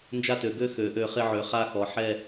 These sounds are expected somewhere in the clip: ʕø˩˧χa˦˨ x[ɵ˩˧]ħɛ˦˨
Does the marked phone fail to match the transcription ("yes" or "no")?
yes